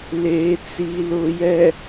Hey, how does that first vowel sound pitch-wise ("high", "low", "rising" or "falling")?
low